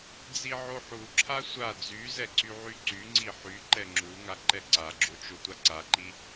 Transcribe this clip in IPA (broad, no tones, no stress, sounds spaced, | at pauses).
d͡z i ʕ o ħ u ǁʰ a sʷ a d͡z y z ɛ ǀ y ʕ y ǀ y ŋ͡ǀ i ħ y ǃ ɛ ŋ͡ǁ u ŋ a ǃ ɛ ǀ a ɡ͡ǁ o t͡ʃ o tʷ a ǀ a ǃ i